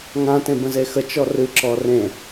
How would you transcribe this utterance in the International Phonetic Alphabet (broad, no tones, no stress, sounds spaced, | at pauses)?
ŋ ã t ẽ b ə̃ z e x ə t͡ʃ ɔ r ɨ ǁ ɔ r ẽ